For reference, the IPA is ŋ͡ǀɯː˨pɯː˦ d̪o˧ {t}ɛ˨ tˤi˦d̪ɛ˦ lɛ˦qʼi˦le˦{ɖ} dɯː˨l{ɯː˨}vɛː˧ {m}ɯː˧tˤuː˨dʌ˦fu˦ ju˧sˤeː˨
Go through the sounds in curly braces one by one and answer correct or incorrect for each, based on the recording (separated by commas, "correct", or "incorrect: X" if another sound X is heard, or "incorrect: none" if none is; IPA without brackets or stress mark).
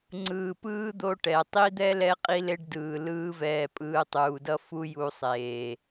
incorrect: ʈ, correct, incorrect: ɯː˦, incorrect: pʼ